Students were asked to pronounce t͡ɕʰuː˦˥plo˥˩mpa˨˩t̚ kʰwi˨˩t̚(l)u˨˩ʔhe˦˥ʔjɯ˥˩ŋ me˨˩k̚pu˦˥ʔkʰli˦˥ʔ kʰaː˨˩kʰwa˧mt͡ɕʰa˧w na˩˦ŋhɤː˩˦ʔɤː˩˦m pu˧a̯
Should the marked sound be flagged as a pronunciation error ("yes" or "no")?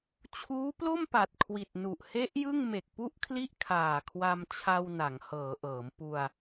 yes